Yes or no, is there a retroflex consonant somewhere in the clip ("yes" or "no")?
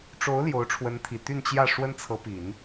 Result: yes